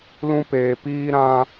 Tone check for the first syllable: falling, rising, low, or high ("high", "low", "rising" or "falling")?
high